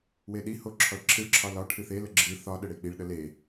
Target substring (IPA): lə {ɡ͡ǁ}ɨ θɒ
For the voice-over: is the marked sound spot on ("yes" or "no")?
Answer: yes